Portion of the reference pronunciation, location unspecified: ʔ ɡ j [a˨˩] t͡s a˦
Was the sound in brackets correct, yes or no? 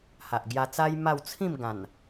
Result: no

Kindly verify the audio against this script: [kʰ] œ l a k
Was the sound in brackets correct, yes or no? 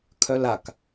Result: yes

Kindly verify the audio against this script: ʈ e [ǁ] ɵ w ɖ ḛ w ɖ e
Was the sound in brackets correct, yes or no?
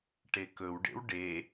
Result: no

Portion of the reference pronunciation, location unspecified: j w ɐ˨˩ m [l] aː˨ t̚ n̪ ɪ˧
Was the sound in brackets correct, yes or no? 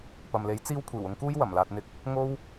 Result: yes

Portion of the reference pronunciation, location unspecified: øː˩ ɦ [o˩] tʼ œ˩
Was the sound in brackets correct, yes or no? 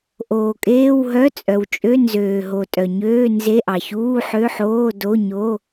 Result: yes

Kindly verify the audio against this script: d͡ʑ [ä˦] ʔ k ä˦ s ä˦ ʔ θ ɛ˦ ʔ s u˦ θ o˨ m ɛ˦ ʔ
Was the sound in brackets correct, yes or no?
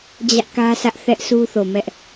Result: yes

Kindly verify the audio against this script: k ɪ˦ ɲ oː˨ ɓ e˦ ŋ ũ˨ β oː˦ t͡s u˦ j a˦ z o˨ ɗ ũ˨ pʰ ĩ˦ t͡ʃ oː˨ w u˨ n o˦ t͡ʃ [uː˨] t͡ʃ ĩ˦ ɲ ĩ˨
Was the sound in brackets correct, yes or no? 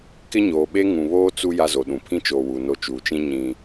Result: yes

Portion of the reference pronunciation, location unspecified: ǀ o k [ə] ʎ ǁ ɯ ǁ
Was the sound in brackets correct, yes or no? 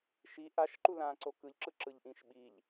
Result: no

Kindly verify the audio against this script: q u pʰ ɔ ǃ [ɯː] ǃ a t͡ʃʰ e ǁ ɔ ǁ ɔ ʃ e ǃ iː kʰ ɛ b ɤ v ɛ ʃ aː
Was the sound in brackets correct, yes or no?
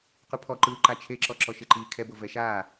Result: yes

